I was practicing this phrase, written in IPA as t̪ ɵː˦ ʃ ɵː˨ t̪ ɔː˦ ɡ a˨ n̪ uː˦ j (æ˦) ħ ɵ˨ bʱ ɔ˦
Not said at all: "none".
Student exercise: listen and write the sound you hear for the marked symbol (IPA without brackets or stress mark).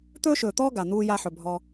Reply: a˦